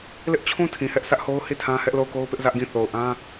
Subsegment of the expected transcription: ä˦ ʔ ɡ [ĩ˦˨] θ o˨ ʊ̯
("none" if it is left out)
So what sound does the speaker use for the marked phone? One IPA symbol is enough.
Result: ĩ˦˨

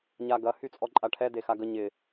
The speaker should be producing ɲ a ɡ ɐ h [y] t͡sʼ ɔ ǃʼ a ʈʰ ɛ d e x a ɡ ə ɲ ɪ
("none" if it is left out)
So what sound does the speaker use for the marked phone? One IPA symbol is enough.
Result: y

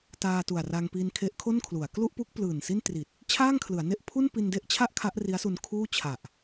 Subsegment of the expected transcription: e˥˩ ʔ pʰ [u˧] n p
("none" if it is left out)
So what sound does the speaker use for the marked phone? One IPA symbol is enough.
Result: u˥˩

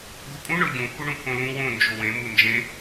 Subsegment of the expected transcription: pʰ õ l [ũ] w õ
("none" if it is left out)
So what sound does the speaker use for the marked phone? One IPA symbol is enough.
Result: ũ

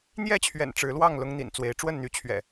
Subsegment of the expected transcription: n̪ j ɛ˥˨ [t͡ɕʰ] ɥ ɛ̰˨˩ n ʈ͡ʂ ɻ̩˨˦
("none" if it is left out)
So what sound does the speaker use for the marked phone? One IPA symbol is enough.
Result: t͡ɕʰ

